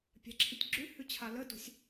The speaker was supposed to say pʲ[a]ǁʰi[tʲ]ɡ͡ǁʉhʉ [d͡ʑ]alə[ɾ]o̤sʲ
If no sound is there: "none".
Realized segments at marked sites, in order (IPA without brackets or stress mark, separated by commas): a̤, tʲ, t͡ɕʰ, d